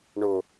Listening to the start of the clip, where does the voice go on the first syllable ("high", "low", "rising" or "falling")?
low